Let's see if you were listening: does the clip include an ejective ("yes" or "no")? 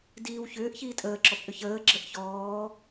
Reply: yes